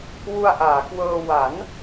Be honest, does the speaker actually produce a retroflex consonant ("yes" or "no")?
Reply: no